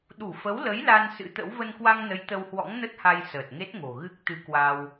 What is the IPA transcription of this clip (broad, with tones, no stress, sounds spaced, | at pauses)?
ɗ u˧˩ f ə˨˦ w l ə˨˦ j l a˧ n s ɨ̰˧˥ t̪ ə̰˧˥ w v ə˧ n k w a˧ ŋ n ə˨˦ j t̪ ə˧ w h w ɔ̰˧˥ ŋ n ə˦˥ t̚ h a˧ j s əː˨˩ t̚ ŋ e˦˥ t̚ ŋ o̤˨˩ ɣ ɨ˦˥ k̚ t̪ ɨ˧ k w a˧ w